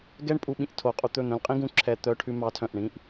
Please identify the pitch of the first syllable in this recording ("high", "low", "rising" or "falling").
high